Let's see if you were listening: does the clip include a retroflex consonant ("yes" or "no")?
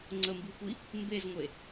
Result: no